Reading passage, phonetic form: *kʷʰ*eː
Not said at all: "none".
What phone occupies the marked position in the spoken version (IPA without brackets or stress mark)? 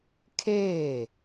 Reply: kʰ